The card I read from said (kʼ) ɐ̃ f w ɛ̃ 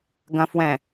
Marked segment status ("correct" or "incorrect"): incorrect